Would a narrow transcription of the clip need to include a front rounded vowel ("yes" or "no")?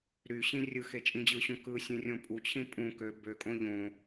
yes